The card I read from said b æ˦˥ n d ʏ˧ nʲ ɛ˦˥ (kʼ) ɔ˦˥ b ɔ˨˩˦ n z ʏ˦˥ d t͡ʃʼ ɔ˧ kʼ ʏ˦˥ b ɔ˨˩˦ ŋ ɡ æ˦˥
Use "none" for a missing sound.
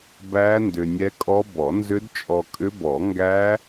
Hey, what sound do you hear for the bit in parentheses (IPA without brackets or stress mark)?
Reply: kʼ